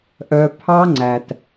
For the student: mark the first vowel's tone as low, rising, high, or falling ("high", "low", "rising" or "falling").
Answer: low